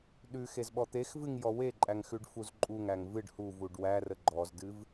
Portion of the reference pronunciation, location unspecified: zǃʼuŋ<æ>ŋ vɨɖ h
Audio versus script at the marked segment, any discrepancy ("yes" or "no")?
no